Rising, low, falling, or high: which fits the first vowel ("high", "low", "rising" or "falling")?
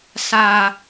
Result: high